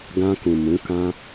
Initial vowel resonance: nasal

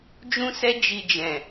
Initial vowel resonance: nasal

